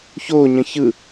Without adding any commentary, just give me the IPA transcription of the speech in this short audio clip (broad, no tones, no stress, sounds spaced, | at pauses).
ç o ɲ ə̃ ç ɯ